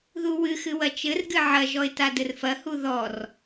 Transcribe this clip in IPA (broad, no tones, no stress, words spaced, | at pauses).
ðuwɨxɨ wɐt͡ʃɘrɡɨ ʕɐʒɔɪ̯ tadɘrfɐhu ðɔr